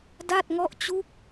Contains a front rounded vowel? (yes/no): no